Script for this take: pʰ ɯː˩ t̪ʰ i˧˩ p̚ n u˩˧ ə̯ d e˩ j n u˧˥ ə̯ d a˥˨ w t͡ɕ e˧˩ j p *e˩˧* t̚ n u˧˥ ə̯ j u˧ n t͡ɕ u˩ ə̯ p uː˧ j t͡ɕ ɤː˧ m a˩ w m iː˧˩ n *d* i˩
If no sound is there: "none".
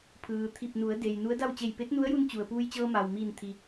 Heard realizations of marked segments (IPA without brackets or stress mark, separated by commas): e˧˥, t̪ʰ